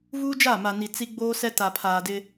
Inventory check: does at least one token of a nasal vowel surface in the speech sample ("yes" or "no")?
no